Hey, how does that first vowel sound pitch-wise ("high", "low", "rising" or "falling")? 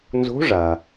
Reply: rising